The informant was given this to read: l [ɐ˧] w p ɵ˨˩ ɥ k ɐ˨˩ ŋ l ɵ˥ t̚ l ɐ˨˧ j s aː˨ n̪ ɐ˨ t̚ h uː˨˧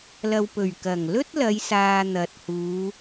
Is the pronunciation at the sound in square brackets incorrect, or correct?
incorrect